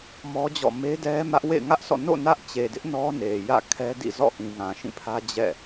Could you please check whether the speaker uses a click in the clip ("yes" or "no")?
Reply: no